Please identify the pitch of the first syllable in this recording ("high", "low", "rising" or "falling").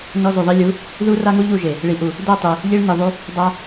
high